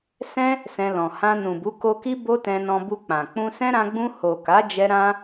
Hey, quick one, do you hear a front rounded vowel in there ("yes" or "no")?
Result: no